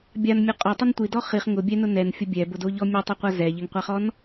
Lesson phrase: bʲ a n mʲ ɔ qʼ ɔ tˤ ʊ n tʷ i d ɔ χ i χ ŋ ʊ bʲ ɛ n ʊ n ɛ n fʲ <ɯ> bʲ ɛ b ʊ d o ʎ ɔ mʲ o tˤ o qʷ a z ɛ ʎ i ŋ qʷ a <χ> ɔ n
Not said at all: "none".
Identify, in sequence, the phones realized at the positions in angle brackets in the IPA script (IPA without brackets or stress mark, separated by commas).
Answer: ʊ, χ